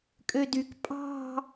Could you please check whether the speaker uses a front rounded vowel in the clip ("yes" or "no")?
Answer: yes